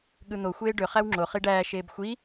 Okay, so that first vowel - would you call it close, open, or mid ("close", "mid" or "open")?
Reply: close